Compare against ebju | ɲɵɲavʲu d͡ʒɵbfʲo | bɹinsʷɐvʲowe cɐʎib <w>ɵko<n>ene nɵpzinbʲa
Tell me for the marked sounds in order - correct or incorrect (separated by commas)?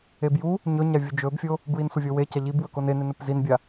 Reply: correct, correct